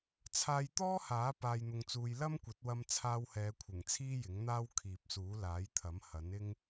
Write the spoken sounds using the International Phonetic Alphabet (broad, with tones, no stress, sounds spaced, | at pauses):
t͡sʰ aː˧ j t̪ ɔː˥ h aː˨˥ p aː˧ j n̪ ʊ˧ ŋ t͡s uː˧ j l ɐ˥ m kʷ ɐ˨˥ t̚ w ɐ˧ m t͡sʰ aː˧ w h ɛː˨˧ kʷʰ ɪ˨˩ ŋ t͡sʰ iː˥ j ɪ˨˥ ŋ n̪ aː˥ w kʰ iː˨ p̚ s uː˨˥ l aː˨˥ j t̪ʰ ɐ˨˥ m h ɐ˨˥ n ɪ˥ ŋ